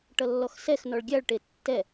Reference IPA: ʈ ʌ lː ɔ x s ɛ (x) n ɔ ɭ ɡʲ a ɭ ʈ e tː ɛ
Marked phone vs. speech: correct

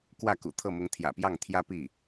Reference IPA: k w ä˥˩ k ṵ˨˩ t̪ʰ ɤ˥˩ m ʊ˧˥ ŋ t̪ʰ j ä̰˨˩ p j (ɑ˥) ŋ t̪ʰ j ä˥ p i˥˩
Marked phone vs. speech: incorrect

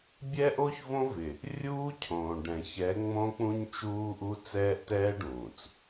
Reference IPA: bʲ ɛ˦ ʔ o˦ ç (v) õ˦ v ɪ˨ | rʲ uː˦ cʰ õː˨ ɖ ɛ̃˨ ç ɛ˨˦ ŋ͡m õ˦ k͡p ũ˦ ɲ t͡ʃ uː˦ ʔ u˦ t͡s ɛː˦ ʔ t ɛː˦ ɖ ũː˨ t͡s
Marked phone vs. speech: correct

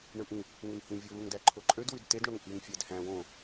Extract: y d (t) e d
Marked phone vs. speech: correct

